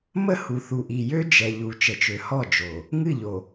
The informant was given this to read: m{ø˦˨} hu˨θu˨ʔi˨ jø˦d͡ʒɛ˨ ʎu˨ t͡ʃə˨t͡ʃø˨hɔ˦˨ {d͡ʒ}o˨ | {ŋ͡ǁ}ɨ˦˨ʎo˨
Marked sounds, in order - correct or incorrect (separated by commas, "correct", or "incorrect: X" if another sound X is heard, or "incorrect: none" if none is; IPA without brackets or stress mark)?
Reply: incorrect: ə˦˨, correct, incorrect: ŋ